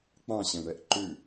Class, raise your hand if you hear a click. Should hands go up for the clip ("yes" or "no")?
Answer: yes